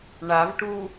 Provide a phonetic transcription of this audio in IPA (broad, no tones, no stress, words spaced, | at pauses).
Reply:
ɳavʈu